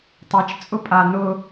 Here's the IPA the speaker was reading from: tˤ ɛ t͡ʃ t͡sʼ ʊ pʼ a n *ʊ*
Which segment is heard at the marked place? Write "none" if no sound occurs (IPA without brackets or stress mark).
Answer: ʊ